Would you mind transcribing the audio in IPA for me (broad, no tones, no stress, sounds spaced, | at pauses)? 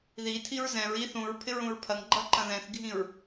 ð i tʰ i ɹ z ɛ̃ ɹ i θ ũ ɹ pʰ ɪ ɹ ũ ɹ pʰ ɐ ŋ ɡ͡ǃ ɐ ǃ ɐ̃ ð ɛ̃ θ ɡʱ ĩ ɹ